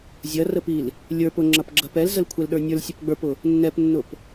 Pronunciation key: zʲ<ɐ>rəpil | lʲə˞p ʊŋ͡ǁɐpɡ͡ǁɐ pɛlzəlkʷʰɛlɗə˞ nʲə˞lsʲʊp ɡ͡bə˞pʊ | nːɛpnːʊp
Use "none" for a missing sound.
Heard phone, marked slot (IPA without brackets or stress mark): ɐ